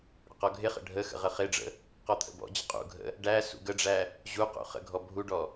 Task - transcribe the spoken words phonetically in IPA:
ɽ ə̰ q ɔ ɡʱ ɪ χ ə̰ ɖʱ ə x ə̰ ʁ ə χ ɪ ɖ͡ʐ ə̰ | q ɔ t̪ʰ ə̰ b ɔ̰ d͡ʑ ə qʼ ṵ ɡʱ ə̰ | ɖ æ s ṵ ɡ ə ɖ͡ʐ æ | ʑ u q ṵ χ ə̰ ɡʱ ɔ bʱ u ɖ ɔ

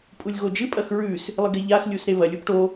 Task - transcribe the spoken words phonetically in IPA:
pʼ u lʲ ɣ o d͡ʒ ɨ pʼ ɐ x ɹ ʉ s | lˠ ɨ ɡ e ʎ a x lʲ u s ɾ e β ɐ lʲ u p ʈ o

